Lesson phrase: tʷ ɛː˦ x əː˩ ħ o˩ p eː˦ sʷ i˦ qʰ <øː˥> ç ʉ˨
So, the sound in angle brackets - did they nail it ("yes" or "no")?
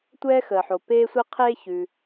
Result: no